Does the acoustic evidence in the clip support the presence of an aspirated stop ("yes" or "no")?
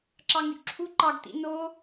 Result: yes